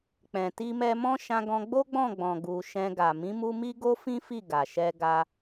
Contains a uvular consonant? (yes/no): no